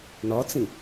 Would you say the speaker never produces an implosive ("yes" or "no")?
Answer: yes